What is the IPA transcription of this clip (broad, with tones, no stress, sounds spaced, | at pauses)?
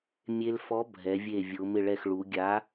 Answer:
mʲ e˧ l f ɔ˨˥ bʱ ɛ˩˧ vʲ e˧˩ vʲ ʊ˩˧ m ɪ˧˩ ɭ ɛ˧˩ x ɭ u˩˧ ɡʲ a˨˥